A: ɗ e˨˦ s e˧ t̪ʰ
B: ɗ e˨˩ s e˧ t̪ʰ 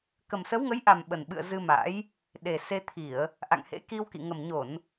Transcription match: B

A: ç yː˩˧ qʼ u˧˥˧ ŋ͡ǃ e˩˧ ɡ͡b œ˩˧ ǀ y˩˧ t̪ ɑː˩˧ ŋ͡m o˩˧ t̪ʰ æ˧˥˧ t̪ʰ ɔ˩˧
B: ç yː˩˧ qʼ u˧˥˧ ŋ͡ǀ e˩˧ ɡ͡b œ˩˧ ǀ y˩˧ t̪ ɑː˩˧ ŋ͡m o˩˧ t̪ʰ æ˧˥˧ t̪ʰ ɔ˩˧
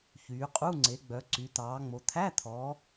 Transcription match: B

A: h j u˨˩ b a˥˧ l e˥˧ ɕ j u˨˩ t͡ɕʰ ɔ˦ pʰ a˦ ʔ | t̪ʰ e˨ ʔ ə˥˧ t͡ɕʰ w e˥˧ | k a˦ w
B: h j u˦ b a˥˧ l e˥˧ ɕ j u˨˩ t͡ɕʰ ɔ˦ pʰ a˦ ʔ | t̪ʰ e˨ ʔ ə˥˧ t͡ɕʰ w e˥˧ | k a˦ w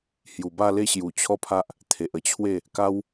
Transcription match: A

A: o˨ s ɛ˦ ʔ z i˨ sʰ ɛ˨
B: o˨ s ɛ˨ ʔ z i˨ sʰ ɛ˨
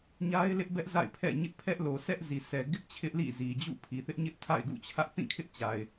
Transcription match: A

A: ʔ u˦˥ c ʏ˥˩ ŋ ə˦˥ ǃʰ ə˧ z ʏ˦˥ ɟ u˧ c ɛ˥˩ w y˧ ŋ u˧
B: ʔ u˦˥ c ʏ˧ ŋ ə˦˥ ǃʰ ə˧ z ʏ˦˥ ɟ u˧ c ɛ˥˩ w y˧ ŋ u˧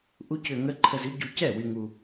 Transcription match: B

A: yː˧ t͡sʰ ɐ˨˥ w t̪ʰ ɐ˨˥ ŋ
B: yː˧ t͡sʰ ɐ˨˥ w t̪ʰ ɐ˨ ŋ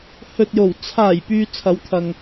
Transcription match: B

